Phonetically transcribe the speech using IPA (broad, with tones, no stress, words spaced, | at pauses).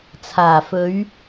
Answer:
t͡sʰaː˨˩fɵ˨˧ɥ